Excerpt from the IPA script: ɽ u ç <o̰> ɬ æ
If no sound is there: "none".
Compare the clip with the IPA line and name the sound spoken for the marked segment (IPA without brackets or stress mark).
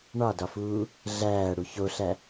o